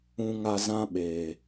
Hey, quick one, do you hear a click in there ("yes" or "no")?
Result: no